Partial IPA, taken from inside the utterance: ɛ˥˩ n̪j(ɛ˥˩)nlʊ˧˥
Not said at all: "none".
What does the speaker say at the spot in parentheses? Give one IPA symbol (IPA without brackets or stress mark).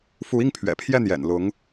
ɛ̰˨˩